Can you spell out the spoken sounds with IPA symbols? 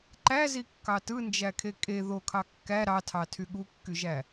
ǃ æ z i kː ɑ t ɯ n d͡ʒ æ kʰ e kʼ e ð o kʰ ɑ kː æ ɾ ɑ tʰ ɑ tʰ y ɠ u kː y ʒ æ

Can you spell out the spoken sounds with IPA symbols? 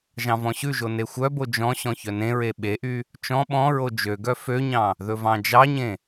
ʒ ɑ̃ v ɔ̃ ɕ ʉ ʒ o n e xʷ œ b o d͡ʒ ɔ̃ ɕ ɔ̃ ç œ n ẽ ɹ e ɓ e ʔ y | t͡ʃ ɔ̃ ɓ ɔ̃ ɹ o d͡ʒ ø ɡ œ f ø ɲ ɑ̃ | ð ɵ v ɑ̃ d͡ʒ ɑ ɲ ẽ

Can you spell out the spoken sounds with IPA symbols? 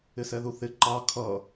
ɪ s ɛ ð u θ ɪ ǃ ɑ kʰ ʌ

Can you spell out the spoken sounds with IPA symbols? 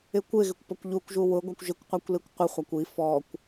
ɪ kʷ ɪ ɣ ɪ kʷ p ɔ kʷ ʎ u kʷ ʒ u w ʊ ɡʷ a kʷ ʒ ɪ kʷ qʷ a kʷ l i kʷ qʷ ɪ χʷ a kʷ i f ɔ kʷ

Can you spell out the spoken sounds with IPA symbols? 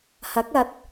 h ɐ˨˥ k̚ ɐ˨˥ t̚

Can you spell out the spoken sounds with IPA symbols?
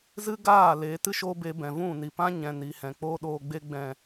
z ɨ˦ ɡ aː˦˨ l e˨˦ t ɨ˦ ʃ o˦ b e˧ b ɛ̃˨ v ũ˦˨ n i˨ p ã˦ ɲ ɛ̃˨ n i˨ h ɛ̃˨ k͡p oː˦ ɗ oː˧ ɡ͡b e˧ ɡ͡b ɛ̃˨

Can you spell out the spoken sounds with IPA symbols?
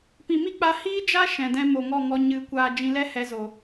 p ĩ˨ m i˦ k͡p a˧ h iː˦ d͡ʒ a˦ ʃ ɛ̃˧ d ɛ̃˦ m o˨ ŋ ɔ˦˨ ŋ ɔ˧ ɲ ɨ˨˦ kʷ aː˧ d͡ʒ ĩ˧ l ɛ˦ h ɛ˧ z o˨

